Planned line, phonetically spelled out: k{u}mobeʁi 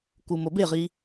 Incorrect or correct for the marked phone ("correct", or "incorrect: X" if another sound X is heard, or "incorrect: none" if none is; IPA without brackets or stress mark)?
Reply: correct